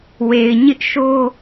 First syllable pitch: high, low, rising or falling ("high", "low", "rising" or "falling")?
low